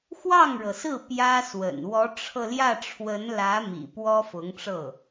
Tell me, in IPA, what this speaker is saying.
x w ɑ˥˩ ŋ ɻ ɤ˩ s ɹ̩˥˩ p j ä˥ s w ə̰˨˩ n w ɔ˧˥ ʈ͡ʂʰ ɤ˧ l j ä˥˩ ʈ͡ʂʰ w ə˧˥ n l ä˧˥ m ḭ˨˩ p w ɔ˥ f ʊ˧˥ ŋ ʈ͡ʂ ɤ˥˩

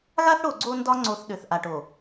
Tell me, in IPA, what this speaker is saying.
ɣ a˦ θ ɽ o˨ ɡ͡ǀ o˦ n d ɒ˦ ŋ͡ǀ o˨ θ ɗ ø˨ θ ʔ a˨ ʈ o˨

